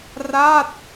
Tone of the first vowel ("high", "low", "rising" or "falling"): falling